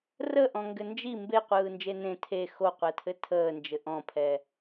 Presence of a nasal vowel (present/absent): present